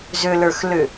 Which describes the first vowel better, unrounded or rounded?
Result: rounded